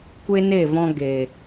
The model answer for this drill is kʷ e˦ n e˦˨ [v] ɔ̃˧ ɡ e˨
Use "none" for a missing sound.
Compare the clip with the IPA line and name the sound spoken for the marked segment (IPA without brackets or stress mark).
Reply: v